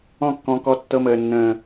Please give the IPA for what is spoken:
ɔ̃˦kːɔ̃˧ kɔ˧tːɤ˧məː˨nːə̃ː˨

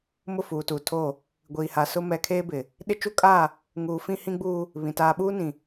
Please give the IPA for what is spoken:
mʊ˦˨fuː˨tuː˨tʰoː˦˨ | ɡʷiː˨ha˨sʊ˦ mɛ˨kʰeː˦ bɪ˨ | ɗɪ˦ t͡ʃu˦kʼaː˦˨ | ŋuː˨fĩ˦hĩ˦ɡ͡buː˦ | βĩ˨ taː˨ɓuː˦nĩ˨

